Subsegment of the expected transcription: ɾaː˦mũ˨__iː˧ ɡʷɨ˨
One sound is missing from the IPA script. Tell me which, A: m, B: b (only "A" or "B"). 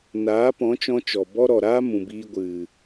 B